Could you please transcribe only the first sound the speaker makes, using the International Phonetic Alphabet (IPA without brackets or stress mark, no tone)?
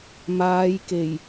m